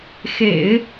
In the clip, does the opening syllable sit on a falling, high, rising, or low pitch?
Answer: low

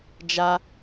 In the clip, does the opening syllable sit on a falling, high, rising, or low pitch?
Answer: high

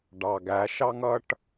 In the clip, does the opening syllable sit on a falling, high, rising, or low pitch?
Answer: low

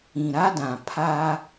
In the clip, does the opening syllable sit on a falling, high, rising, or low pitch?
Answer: low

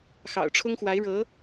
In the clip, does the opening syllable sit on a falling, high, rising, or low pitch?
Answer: low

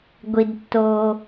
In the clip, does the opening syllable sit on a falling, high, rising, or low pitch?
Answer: low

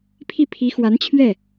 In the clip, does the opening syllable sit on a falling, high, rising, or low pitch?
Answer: falling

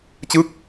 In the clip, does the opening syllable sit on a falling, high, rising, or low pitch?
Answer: falling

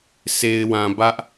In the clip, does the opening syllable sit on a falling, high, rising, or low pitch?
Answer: low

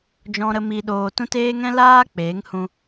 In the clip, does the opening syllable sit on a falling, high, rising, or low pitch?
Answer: high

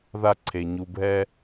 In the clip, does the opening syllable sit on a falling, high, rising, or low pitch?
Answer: high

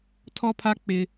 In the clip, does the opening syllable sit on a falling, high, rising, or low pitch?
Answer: high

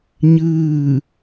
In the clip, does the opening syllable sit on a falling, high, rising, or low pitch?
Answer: falling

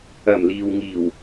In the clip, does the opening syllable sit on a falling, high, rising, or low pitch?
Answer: low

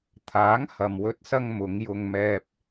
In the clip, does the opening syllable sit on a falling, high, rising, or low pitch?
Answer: rising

